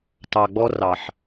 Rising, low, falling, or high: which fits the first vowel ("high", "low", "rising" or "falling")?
low